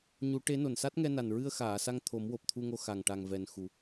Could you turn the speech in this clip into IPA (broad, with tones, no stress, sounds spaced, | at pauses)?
ɲ u˨˩˦ ʈ e˧˥ n o˨˩ n s a˦˥ t̚ ŋ ɛ˧ n a˨˩ n ɹ ɨ˧ ə̯ x aː˨˩˨ s a˧ ŋ t̪ʰ o˨˩˦ m w o˨˩ p̚ t̪ʰ u˧ ŋ o˧ x a˨˩ ŋ ʈ a˨˩ ŋ v ɛ˨˩ n x u˨˩˦